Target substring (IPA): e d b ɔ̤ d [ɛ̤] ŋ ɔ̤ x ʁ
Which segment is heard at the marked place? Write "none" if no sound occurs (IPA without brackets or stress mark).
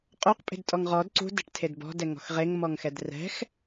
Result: ɛ